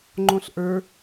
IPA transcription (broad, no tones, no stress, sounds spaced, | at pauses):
ŋ͡ǃ õ ɬ ʔ ə˞